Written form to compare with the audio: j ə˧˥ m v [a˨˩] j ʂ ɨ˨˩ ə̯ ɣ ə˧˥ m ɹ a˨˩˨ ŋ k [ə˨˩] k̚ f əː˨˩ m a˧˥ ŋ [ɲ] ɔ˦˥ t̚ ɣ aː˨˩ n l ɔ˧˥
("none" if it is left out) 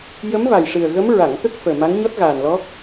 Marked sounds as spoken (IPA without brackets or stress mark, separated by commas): a˨˩, ə˦˥, ɲ